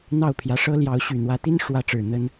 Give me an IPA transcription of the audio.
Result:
n̪ ɑ˥˨ ʊ̯ pʰ j ä˨˦ ʂ ɤ˦ l j ɑ˨˦ ʊ̯ ɕ y˨˩ n̪ w ä˨˦ t̪ i˦ n ʂ w ä˨˦ ʈ͡ʂ ɻ̩˨˩ n̪ ə˦ n

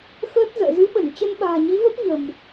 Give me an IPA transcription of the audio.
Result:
x əː˦˥ t̚ z ə̰ː˧˨ z ɨ˨˦ ɓ ə˧˩ n t͡ɕ ə˧ n ɓ a̤ː˨˩ ɲ i˨˦ v ə˦˥ p̚ ɲ ə̤˨˩ m

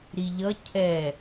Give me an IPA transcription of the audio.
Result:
ɾ i ʎ ʌ cʰ ɛ

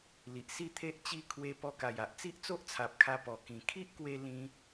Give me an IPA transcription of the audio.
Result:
l i˨ ʔ s i˥˧ t̪ʰ e˦ ʔ t͡ɕ i˦ kʰ w e˧ p ɔ˧ k a˨˩ j a˨ ʔ t͡s i˦ ʔ t͡s o˦ ʔ t͡sʰ a˨ p̚ kʰ a˧ p ɔ˨˩ k ĩ˨˩ kʰ i˦ ʔ k w e˧ l ĩ˧

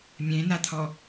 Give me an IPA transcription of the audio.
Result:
mʲ ẽ n a t̪ʰ ɔ

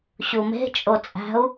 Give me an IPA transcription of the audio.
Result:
ɕ u m e̤ t͡ʃʼ o t͡sʼ æ̤ u̯

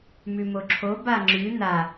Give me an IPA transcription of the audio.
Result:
m ʉ m o ǁʰ o b a ŋ͡ǁ ʉ n a

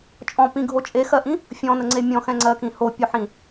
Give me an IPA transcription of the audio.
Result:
t͡ʃʼ ɔ̃ p ĩ ɡʱ o t͡ʃʼ e x ɜ ʔ ĩ | fʲ ɔ̃ n ə ŋ͡ǀ e mʲ ɔ̃ x ɛ̃ ŋ͡ǀ ɜ k ĩ h o pʲ o ħ ĩ

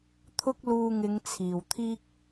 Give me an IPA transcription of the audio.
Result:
t̪ʰ ʊ˥ k̚ l uː˧ ŋ ɪ˨˧ ŋ t͡sʰ iː˨˩ w t̪ʰ iː˥ k̚

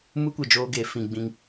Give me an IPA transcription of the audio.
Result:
m u˦ kʷ ɛ˨ d͡ʒ oː˦ ɡ e˨˦ f ĩ˨ ɡ͡b ĩ˦ ŋ

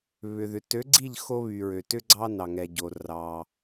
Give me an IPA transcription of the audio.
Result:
β ʏ˩ ð ʏ˩ t ø˨˥ ɡ͡ǀ i˥˨ ʎ x o˦ β y˩ ɹ ø˩ t ʏ˦ ɡ͡ǀ ɑ˦ n ɑ˩ ŋ ɛ˩ ɟ o˩ r ɑ˩

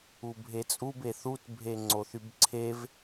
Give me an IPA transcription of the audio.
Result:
u bʱ e t͡sʼ u b e θ u t bʱ e ŋ͡ǀ o θ y b ǀʰ e v

